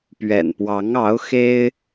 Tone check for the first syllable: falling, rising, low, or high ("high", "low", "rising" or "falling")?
low